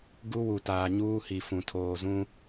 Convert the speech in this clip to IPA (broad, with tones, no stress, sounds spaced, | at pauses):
ɡ u˦ w u˨ t aː˨ ɲ uː˦ h i˨ f ũ˨ tʰ oː˨ z ũ˦